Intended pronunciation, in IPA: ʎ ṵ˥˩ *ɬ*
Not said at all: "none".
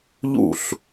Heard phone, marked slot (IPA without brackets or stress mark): ɬ